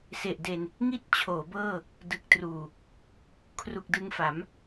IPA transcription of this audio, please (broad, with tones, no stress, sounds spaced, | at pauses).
s e˨˩ ʔ d e˧ n | ŋ i˥˩ t̚ t͡ɕʰ oː˩˦ b ɤː˥˩ | d ɯ˨˩ k̚ t r uː˨˩ | kʰ r u˨˩ k̚ d ɯ˧ ŋ f a˩˦ m